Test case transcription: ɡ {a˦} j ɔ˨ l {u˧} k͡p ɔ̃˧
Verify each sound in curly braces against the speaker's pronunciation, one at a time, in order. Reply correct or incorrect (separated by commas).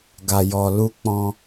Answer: incorrect, correct